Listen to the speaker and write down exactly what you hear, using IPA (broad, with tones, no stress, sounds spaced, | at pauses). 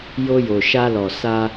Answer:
j o˧ j o˨ ʃ a˧ l ɔ˨ s a˧